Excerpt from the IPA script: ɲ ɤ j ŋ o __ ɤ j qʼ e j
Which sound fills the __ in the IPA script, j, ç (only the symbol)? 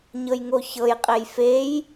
ç